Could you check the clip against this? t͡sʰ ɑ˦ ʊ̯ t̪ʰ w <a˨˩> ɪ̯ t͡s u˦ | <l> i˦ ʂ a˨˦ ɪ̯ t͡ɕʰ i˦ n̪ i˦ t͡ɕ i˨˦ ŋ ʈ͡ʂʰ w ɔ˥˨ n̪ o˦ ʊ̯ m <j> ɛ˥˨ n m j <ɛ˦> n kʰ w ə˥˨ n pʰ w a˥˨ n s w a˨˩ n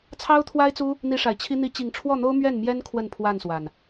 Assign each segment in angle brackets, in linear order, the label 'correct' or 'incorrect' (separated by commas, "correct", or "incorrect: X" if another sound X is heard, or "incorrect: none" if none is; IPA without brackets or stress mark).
incorrect: a˦, incorrect: n̪, incorrect: ɥ, correct